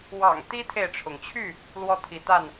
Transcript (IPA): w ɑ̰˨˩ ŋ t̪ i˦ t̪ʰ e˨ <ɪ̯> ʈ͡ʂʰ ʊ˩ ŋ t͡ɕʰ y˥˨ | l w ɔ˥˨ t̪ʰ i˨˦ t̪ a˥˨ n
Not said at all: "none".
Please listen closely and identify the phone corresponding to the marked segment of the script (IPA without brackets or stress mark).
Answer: ɪ̯